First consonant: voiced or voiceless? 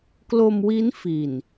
voiceless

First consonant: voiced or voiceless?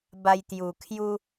voiced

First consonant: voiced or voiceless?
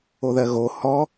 voiced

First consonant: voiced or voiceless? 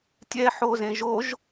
voiceless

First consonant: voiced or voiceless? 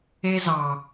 voiced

